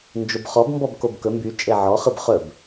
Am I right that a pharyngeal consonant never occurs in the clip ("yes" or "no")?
no